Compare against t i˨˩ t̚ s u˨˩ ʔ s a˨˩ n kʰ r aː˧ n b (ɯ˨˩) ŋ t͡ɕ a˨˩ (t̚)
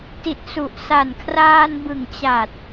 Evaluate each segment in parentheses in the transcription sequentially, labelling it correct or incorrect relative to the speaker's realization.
correct, correct

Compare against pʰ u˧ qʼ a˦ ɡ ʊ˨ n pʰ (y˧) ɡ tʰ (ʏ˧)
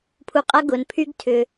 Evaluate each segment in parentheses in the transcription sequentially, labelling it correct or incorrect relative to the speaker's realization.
incorrect: y˦, correct

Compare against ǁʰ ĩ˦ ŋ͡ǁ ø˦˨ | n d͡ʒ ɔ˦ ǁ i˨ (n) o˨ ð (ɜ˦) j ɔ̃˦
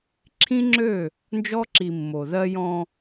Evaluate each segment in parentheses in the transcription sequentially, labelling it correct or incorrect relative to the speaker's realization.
incorrect: mː, correct

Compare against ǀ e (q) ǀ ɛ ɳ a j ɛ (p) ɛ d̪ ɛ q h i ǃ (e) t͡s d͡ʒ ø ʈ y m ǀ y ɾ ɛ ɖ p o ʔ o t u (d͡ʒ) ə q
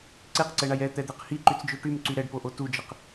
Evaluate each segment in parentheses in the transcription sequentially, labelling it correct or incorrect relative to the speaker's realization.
correct, incorrect: t̪, incorrect: y, correct

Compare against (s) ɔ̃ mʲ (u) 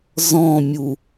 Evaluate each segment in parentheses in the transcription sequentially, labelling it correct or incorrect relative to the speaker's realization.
incorrect: z, correct

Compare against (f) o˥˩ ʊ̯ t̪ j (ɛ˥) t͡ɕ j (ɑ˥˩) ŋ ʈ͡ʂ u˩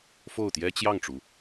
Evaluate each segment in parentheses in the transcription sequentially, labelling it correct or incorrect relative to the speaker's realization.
correct, correct, correct

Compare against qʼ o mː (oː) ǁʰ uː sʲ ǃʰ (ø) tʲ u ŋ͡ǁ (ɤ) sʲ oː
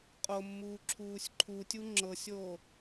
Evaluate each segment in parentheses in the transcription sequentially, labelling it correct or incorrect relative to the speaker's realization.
incorrect: uː, incorrect: u, correct

